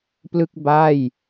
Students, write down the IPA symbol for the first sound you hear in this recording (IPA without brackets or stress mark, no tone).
p